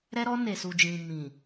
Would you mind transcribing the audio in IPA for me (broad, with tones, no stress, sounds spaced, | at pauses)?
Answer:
ɾ ɛ˦ ɾ ɔ˦ n e˨ s u˨ d͡ʒ ĩ˨ m ĩ˨